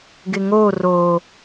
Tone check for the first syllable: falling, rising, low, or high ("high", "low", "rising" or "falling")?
low